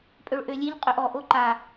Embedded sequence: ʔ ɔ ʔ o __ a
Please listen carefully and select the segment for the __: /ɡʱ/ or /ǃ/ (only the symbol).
ǃ